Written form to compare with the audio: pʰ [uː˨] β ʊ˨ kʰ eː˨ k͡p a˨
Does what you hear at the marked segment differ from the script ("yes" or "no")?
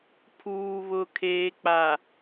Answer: no